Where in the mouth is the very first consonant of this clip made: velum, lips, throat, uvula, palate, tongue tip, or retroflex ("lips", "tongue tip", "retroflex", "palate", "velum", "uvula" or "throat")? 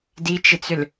tongue tip